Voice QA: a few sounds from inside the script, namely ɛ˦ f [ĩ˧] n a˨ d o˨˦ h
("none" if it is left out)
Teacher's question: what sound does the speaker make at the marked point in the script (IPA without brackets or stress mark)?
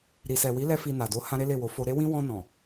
i˧